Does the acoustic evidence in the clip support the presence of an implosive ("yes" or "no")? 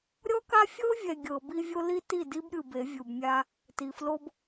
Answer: no